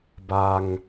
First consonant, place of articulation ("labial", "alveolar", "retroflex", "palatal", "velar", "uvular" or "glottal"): labial